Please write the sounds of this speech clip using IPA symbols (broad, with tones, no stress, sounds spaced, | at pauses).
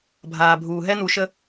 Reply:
bʱ aː˨ bʱ uː˨ ɦ ɛ˦ n̪ u˨ ʃ ə˦